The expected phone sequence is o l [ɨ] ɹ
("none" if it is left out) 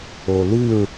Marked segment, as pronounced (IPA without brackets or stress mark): ɨ